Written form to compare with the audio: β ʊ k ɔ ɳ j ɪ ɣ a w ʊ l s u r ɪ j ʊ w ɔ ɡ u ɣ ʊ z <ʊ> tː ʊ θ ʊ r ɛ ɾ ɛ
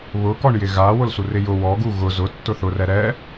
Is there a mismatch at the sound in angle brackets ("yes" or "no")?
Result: no